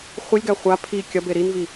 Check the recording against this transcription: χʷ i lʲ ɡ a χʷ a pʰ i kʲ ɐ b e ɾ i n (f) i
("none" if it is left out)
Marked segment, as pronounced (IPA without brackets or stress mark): v